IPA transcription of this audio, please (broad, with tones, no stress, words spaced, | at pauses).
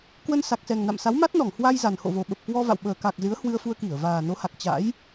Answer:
kwə˧nsa˨˩k̚sɛ˨˩ŋ na̰˧˨msa˨˦w ma˦˥t̚nɔ˧˩ŋhwa˧j za˨˩nho̰˧˨vo˨˩ ɓə˨˩p̚kwɔ˧va̰˧˨w ɓəː˨˩ka˨˩k̚ zɨ˨˦ə̯hwɨ˧ə̯fu˧ə̯ki˧˩ə̯ vaː˨˩no˨˦ha˨˩k̚ t͡ɕa̰˧˥j